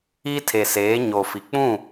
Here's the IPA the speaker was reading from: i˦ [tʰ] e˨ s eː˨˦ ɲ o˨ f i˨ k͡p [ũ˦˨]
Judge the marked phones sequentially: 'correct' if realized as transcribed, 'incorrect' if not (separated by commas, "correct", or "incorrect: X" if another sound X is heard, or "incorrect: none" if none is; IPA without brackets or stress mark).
correct, correct